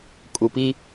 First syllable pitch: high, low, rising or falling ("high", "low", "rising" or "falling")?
low